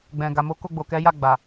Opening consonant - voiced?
yes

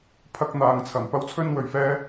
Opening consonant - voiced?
no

